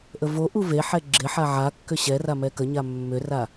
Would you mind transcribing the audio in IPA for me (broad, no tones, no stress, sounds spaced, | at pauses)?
ʔ ə v o ʔ u v e ħ ɛ ɡ͡ǁ ɪ ħ a ʕ a kː ʏ ɕ ɛ r a m ɛ k ə ɲ a mː ʏ r a